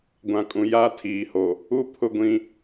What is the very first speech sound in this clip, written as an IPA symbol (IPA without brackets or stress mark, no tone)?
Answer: ɡʷ